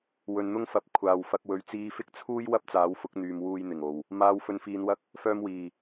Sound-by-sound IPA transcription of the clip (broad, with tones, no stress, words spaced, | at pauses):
wɵ˨nn̪ʊ˥ŋfɐ˨˥p̚ kʷʰaː˨wfɐ˧k̚ wɵ˨˥ɥ t͡siː˧fɪ˥k̚t͡sʰuː˥j wɐ˥p̚t͡saː˨˥wfʊ˨˥k̚ n̪yː˨m wuː˧jn̪ɪ˨˩ŋ o˨˩w | maː˧w fɵ˧nfiː˧nwɐ˥k̚ | fœː˧mwiː˨˩